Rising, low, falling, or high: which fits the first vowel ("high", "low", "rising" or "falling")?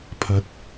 low